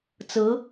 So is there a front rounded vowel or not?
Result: no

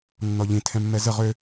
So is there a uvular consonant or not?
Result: yes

